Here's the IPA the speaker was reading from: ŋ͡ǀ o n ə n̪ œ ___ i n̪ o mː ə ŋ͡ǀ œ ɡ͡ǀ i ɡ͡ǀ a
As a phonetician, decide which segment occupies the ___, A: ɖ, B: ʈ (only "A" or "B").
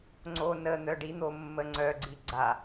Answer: A